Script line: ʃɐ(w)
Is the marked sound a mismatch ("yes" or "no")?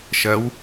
no